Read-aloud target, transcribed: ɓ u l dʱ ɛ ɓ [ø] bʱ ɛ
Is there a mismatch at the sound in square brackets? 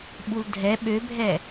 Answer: no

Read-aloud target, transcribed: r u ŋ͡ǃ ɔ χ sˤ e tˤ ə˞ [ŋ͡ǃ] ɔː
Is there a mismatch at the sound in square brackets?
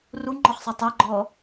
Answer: yes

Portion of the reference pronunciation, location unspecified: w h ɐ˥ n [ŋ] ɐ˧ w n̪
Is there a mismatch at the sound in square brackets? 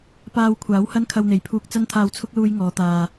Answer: yes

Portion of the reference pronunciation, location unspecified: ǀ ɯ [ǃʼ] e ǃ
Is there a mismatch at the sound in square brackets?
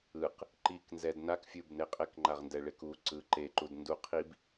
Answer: yes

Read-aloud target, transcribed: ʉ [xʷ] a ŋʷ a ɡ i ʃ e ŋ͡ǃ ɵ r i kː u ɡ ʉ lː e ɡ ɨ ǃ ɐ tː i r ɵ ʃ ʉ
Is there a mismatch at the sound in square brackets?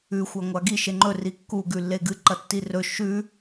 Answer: no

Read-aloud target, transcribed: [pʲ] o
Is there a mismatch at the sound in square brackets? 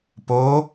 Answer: yes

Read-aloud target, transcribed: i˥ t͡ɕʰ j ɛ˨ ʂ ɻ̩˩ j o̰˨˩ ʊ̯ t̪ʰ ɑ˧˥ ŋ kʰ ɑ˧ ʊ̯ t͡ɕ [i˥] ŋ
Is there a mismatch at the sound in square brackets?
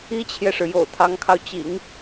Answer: yes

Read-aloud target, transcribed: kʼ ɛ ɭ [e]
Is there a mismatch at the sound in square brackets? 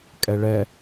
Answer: yes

